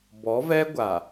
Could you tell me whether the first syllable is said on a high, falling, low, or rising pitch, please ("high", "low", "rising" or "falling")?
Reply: rising